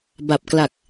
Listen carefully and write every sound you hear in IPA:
b a˨˩ p̚ k l a˨˩ k̚

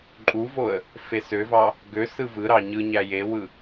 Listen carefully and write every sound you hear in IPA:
ǃʼ u v o ə̯ | f e s ø v ɑ | ɡ ø s ɯ v ɯ ɾ ɑ ɲ ɯ ɲ æ j e w ɯ

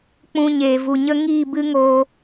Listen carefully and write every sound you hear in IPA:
k͡p ũ˧ ɲ eː˨ v u˨ ɲ ə˦ ŋ iː˦˨ b ɨ˦ ŋ oː˧

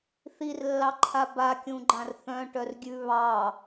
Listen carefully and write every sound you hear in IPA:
θ i r lː ɑ ǃʰ a b a kʲ ũ ɡ͡ǃ ã r θ œ̃ ʈ œ r ɡʲ ʉ β ɑ

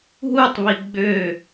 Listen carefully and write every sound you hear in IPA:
ɦ u tˤ β i ɡ͡b ø

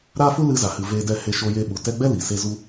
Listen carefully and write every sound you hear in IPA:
ɾ a˦ f u˦ l ɨ˧ z a˨ h ɨ˨ v eː˧ d ɛ˦˨ h e˧ ʃ o˧ j e˧ ɓ u˨ t ɛ˧ ɡ͡b ɛ˦ l i˨ s e˦ z u˦

